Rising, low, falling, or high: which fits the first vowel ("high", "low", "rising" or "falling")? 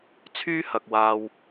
high